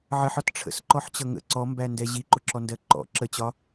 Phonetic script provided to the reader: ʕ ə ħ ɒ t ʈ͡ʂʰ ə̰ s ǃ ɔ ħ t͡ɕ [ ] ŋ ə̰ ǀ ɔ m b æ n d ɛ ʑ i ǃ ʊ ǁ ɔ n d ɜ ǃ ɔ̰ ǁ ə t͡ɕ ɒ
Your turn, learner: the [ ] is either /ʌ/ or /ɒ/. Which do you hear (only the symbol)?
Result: ʌ